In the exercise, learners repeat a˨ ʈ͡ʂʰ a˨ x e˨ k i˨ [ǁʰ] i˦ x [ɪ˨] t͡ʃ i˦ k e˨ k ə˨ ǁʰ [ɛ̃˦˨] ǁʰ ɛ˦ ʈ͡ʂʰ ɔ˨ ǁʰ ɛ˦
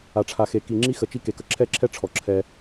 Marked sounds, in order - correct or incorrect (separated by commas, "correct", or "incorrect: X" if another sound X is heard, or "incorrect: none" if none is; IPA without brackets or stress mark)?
incorrect: ŋ͡ǁ, incorrect: ə˨, incorrect: ɛ˦˨